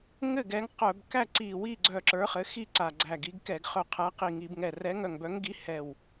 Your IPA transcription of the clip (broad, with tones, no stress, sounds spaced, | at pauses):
ŋ ɘ˥˩ ɡ ɛ˨˥ ŋ q œ˧˩˧ b k æ˥˩ ǀ i˧˩ w i˥˩ ɡ͡ǀ œ˧˩ ǁ ə˞˨˥ χ ɘ˨˥ x i˥˩ ǀ a˧˩ ɡ͡ǀ æ˧˩ ɡ i˨˥ ɡ k ɛ˧˩˧ ɡ χ œ˧˩˧ qʰ æ˨˥ q i˧˩˧ ŋ i˧˩˧ b ŋ ɛ˧˩ r ɛ˨˥ ŋ œ˧˩ ŋ b œ˨˥ ŋ ɡ i˨˥ h ɛ˧˩ w